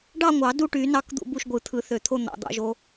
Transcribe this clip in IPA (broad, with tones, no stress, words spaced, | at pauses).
ɖɑ˥˨ŋʷɑ˨˩˦ du˥˨ʈy˨˩˦ nɑ˥˨kd̪ṵ˥˨ bu˥˨ʃɡʷɯ˨˩˦t̪ʰɯ˨˩˦θø˨˩˦ t̪ʰo˥˨n̪ɑ̰˨˩˦d̪ɑ̰˨˩˦ʒo˨˩˦